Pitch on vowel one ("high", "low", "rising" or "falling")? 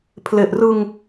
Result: low